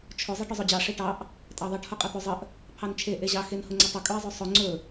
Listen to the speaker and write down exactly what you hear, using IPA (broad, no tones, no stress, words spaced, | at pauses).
t͡ʃʰʊ zˤeʈʊzˤɵd͡ʑɑ ʂeʈɑʔ | tʼɑðˤeʈ hʊqʼət̪ɵzˤəʔ | pʰɑnt͡ʃʰe ʔeʑɑ xenhʊŋ͡ǀətˤə kʼɵɪ̯zˤɵsˤʊ ŋ͡ǀɵ